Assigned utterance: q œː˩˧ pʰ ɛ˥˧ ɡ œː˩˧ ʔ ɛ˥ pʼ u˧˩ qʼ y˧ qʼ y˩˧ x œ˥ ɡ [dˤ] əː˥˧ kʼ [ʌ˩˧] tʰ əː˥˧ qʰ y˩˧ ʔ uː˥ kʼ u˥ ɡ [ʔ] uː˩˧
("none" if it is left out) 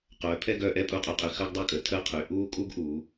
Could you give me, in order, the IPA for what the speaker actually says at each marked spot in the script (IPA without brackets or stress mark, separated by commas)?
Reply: dˤ, ə˩˧, ʔ